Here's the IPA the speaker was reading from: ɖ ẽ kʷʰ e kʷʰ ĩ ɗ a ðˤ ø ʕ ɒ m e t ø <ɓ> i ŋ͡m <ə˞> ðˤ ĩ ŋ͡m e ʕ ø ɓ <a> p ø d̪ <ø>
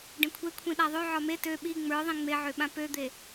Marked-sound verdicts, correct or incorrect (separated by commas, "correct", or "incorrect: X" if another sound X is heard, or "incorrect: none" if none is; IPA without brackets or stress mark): correct, correct, incorrect: ã, incorrect: e